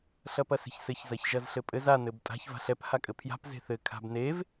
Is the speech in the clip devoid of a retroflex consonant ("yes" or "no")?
yes